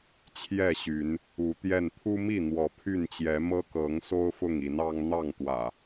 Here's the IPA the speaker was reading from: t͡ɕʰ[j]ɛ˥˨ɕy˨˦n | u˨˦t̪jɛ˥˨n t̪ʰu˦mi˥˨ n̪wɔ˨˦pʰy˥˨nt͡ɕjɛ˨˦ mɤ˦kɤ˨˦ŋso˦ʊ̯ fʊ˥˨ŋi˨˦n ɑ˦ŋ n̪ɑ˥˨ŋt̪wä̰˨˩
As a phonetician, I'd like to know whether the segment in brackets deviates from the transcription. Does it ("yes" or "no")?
no